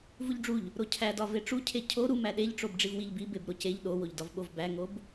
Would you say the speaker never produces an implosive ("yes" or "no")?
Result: no